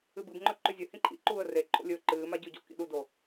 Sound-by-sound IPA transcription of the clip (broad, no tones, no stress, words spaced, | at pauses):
ɨbɨbŋ͡ǃɵ ǃʉzʲɵ hĩǃʰḭ ǃuːə̯reǃʰo̰lʲɵː ǃɨːma ɟʉɟo̰kḭɗu do